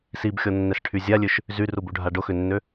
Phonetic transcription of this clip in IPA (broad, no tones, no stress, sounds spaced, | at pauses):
s i b xʲ ɔ nː ɛ s ʈʰ y zʲ a lʲ ø ʃ | z y r u b u ɖʱ a ɖ ʊ x ʏ nː ø